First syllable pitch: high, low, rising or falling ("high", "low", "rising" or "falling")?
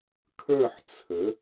falling